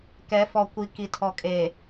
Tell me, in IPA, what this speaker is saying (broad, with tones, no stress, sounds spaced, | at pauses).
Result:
k ɛ˨˦ f ɔ˨ kʷ i˨ k i˨ tʰ ɔ˨ kʼ e˨